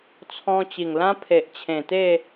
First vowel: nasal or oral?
nasal